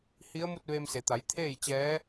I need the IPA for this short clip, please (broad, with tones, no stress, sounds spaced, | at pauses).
h i˧˥ ə̯ m u˥˨ t̚ ʋ eː˧ m s e˩˧ t̪ a˩˧ j t̪ʰ eː˥˨ j t͡ɕ ɛː˧˥